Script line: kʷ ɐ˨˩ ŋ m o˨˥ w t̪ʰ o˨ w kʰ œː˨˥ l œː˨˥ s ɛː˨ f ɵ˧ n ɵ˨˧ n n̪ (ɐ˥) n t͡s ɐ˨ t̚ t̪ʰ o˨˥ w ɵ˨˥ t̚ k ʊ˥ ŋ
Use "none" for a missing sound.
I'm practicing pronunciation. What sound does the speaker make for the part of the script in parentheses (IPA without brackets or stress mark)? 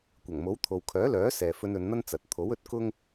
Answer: ɐ˥